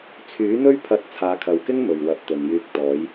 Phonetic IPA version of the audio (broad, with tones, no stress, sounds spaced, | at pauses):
t͡sʰ yː˨˥ n̪ ɵ˥ ɥ pʰ ɐ˧ t̚ t͡sʰ aː˨˧ kʰ ɐ˨ w k ɪ˥ ŋ m ɵ˨ ɥ w ɐ˨˥ p̚ t̪ ɵ˨ n j yː˧ k̚ t̪ ɔː˨˧ j